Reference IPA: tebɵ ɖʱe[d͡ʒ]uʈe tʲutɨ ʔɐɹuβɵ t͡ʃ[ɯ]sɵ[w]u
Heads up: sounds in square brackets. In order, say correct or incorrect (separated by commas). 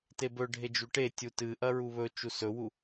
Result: correct, incorrect, correct